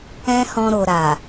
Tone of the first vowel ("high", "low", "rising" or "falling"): high